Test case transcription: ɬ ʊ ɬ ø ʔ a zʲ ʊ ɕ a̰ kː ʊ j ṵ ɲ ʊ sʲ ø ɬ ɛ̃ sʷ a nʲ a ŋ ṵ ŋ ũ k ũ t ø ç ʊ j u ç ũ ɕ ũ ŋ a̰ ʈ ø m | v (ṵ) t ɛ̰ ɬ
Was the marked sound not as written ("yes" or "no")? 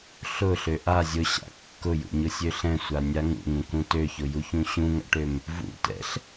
no